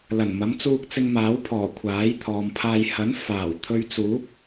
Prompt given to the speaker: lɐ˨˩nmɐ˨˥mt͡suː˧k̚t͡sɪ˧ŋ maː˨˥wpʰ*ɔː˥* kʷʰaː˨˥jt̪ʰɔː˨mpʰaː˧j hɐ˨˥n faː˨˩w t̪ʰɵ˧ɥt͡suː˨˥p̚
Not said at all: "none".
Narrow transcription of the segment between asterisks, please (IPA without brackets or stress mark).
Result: ɔː˨˩